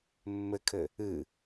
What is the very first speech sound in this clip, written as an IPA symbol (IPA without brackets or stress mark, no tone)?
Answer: mː